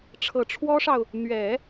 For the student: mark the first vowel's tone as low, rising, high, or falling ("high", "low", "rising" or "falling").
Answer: low